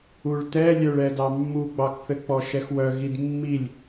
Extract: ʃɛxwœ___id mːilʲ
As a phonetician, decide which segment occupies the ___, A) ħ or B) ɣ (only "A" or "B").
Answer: B